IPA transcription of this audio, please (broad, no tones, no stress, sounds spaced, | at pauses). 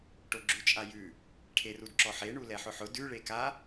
ʈ o ɡ͡ǁ ʉ t͡ʃʼ a j ʉ | ʈʰ e r u d ǁ ɔ ħ e ɳ u l ɛ ħ ʊ ħ ʊ d ʉ ɭ e k a